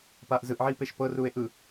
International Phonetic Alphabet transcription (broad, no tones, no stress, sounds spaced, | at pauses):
p aː ʔ z ɯ ʔ ʕ iː p e ʃ p ɤ r uː e̯ ʔ ɯ